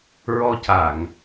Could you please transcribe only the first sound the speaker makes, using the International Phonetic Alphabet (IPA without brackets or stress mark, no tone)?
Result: ɹ